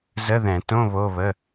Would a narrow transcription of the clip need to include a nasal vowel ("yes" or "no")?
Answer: yes